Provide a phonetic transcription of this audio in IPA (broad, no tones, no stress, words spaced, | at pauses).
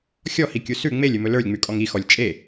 xʲɔhikʲu sʉ ŋ͡melʲɵmɵ lə˞lʲŋ͡mʉkʼɔŋ ixɔlʲ t͡ʃʼe